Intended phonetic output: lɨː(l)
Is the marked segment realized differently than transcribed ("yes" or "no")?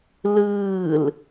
no